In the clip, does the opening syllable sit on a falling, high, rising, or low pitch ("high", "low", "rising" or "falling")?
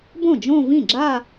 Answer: falling